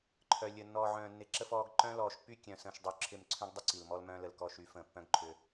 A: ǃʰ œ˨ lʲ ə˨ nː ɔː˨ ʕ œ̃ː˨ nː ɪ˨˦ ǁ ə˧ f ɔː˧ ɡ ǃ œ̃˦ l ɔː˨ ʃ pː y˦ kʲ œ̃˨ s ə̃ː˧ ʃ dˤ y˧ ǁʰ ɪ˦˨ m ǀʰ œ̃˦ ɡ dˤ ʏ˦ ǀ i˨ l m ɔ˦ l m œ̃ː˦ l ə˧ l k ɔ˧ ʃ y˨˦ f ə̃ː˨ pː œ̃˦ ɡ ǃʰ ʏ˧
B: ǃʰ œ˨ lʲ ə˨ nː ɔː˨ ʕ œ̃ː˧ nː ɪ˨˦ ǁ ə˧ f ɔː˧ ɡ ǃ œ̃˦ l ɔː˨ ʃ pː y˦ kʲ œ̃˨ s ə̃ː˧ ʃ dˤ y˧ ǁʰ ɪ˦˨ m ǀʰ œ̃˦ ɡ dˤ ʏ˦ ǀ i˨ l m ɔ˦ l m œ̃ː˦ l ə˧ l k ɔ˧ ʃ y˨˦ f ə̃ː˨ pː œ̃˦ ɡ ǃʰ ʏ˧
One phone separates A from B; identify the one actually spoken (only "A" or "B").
A